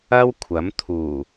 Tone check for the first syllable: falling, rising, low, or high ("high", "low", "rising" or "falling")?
high